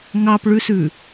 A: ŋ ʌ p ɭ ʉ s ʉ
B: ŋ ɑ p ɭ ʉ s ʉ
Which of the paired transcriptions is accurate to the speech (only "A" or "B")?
B